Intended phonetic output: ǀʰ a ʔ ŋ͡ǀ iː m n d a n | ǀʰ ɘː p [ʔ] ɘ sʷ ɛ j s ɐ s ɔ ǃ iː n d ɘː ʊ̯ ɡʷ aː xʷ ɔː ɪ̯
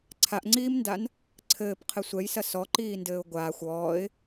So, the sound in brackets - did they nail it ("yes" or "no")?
no